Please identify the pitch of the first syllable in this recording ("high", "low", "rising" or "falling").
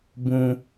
high